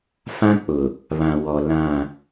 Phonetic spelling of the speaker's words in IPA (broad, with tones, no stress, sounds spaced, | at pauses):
f ã˦ k͡p ʊ˨ | β ã˨ w ɔ˨ l ã˦˨